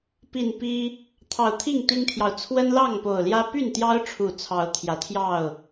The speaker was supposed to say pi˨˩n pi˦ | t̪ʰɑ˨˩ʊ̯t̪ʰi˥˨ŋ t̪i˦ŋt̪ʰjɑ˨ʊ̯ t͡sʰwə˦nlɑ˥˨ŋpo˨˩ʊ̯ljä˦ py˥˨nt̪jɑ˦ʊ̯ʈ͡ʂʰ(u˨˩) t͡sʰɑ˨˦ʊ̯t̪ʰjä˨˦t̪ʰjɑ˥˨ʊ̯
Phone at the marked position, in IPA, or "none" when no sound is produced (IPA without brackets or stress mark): u˨˩